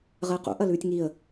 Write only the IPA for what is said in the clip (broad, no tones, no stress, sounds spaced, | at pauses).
ʁ əː q ṵ ʔ ɐ l ʉː tʲ ŋ i ə̯